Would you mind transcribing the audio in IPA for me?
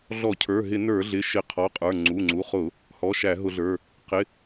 ɮ ɔ˧˩˧ cʰ ə˞˩˧˩ ɦ ɪ˧˩˧ n ə˞˧˩˧ ɮ ɪ˩˧˩ ʃ ɪ˧˩˧ qʰ ɔ˩˧˩ qʼ ə˞˩˧˩ ŋ͡ǀ u˩˧˩ ŋ͡ǀ u˩˧˩ χ ʊ˧˩˧ | h ɔ˩˧˩ ʃ æ˧˩˧ ɦ ʊ˧˩˧ ɮ ə˞˩˧˩ | q ɪ˩˧˩

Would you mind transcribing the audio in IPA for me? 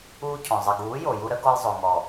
uː˦ cʰ ɔ̃˨ zˤ ɪ˨ ɡ uː˨˦ j o˨ j u˧ ɾ ə˦ ɡ ɔ˧ j zˤ o˨ ŋ ɔ˨

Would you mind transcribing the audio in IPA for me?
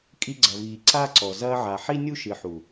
kʼ i˧ ɡ͡ǀ ɐ˨ v iː˨ ǀ a˦ ǀ ɔ˨ z ɐː˧ ʕ a˨ ħ i˦ nʲ u˦ ʃ ɨ˨ ħ u˨

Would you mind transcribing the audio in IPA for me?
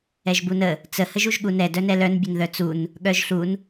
ɛ ʒ b u n ə | t͡s ə h ə ʒ u ʒ ɠ u n ɛ d œ n ɛ l œ n bʲ ə n ð œ t͡s u n | ɠ œ ʒ ɬ u n

